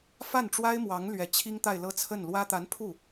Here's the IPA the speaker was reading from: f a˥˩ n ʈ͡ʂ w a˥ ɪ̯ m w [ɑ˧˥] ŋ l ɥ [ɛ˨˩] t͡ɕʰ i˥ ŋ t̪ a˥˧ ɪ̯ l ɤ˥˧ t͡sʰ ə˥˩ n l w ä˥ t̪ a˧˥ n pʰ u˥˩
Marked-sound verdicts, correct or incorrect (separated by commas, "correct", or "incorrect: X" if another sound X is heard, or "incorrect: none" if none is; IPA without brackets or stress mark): correct, correct